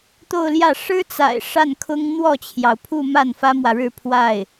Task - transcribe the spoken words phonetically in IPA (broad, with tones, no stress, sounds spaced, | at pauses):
t̪ o˥˧ ʊ̯ l j ä˥˩ ʂ ɻ̩˥ t͡s a̰˨˩ ɪ̯ ʂ a˥˩ n kʰ ʊ˥ ŋ n̪ w ɔ˥˩ t͡ɕʰ j ɑ˩ ʊ̯ pʰ u˥˧ m a˥˩ n f ä˥ m w ä˨ ɻ ɻ̩˥˧ pʰ w a˥˩ ɪ̯